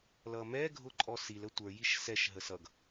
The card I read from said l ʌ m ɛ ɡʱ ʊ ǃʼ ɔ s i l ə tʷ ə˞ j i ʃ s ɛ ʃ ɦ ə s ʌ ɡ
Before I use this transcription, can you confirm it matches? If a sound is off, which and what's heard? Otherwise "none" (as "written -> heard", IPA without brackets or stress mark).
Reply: none